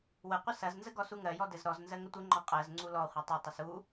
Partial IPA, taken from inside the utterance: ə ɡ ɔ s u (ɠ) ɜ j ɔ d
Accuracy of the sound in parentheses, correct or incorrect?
incorrect